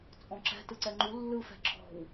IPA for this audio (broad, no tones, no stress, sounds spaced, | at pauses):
t͡sʼ ɔ̃ ǁ ɛ̤ t ɯ ǀ ɛ ŋ͡ǃ u lː ɯ f ɛ̤ ǁʰ ɔ̤ w